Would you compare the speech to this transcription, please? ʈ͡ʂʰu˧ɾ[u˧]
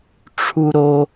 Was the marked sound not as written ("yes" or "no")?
yes